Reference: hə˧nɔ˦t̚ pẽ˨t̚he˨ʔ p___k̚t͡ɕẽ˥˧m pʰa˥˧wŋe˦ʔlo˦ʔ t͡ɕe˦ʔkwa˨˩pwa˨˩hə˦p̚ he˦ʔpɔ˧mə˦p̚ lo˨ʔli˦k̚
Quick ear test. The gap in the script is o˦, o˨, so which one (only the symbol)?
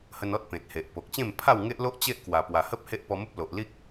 o˨